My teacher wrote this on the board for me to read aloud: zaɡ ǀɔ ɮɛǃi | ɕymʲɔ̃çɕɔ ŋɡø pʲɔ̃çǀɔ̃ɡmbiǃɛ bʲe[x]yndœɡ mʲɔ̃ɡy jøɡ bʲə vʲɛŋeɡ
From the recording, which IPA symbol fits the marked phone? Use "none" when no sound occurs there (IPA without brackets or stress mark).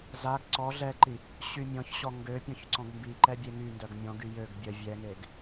ŋ